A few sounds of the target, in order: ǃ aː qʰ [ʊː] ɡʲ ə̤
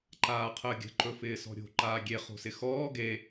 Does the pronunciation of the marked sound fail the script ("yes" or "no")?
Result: yes